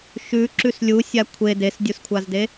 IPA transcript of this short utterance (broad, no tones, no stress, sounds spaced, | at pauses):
ʃ ʉ ǁ ʉ s lʲ u sʲ a kʷʰ e d e s dʲ u s kʷʰ a z d e